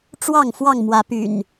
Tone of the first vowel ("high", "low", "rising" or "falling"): falling